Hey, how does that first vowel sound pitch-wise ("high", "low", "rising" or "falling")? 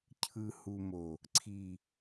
low